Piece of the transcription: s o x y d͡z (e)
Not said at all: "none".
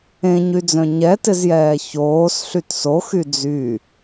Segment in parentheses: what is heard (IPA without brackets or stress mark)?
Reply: y